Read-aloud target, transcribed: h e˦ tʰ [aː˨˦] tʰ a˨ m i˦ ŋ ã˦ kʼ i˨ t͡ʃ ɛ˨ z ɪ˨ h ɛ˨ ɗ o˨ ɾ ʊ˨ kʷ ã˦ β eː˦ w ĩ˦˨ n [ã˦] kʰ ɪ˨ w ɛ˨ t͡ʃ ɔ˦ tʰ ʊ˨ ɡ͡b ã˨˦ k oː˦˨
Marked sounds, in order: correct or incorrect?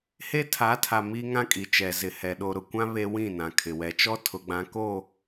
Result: correct, incorrect

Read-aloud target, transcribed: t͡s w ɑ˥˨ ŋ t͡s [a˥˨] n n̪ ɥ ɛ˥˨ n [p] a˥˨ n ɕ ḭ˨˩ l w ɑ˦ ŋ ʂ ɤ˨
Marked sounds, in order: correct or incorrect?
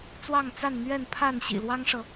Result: correct, incorrect

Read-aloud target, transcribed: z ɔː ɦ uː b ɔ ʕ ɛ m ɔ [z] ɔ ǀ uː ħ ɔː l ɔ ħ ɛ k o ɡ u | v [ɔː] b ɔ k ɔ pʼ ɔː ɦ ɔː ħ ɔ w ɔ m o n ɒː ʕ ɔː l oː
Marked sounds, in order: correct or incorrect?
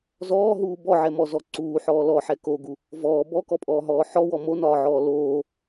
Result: correct, correct

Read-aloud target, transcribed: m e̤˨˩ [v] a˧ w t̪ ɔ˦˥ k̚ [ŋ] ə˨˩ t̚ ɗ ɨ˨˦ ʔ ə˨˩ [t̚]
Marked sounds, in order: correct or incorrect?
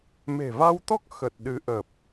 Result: correct, incorrect, incorrect

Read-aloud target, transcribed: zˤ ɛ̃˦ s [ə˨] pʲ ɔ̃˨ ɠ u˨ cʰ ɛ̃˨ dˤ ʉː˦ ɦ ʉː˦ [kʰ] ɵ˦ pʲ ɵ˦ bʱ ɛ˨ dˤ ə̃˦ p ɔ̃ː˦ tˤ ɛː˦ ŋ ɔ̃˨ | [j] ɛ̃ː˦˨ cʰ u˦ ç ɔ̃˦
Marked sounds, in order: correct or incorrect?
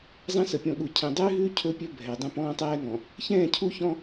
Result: correct, incorrect, incorrect

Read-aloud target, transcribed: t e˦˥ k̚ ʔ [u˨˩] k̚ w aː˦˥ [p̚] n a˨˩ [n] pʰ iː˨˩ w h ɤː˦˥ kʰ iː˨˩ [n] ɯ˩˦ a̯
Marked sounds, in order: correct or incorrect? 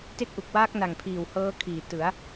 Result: correct, incorrect, incorrect, incorrect

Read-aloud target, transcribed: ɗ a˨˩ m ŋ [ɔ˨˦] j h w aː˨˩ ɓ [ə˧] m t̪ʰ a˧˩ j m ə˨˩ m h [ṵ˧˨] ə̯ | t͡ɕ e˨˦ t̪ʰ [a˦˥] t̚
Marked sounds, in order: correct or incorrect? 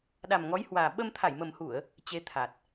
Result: correct, correct, incorrect, incorrect

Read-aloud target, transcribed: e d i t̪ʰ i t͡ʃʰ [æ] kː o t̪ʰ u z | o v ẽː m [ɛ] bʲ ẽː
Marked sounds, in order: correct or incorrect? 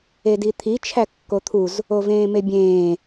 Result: correct, incorrect

